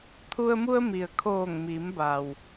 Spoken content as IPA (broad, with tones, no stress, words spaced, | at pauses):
t̪ʰu˧ə̯mu˧ə̯ mi˩ə̯kʰoː˧˩ŋmiː˩˧m ba˩w